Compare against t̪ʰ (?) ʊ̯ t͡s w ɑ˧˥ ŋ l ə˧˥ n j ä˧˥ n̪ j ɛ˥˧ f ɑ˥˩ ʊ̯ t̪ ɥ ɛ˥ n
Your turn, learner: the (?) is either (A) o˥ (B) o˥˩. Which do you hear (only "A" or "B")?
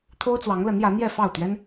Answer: A